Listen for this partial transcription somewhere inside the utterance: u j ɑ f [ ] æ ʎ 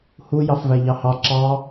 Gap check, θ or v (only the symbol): v